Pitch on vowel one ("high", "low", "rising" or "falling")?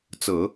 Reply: low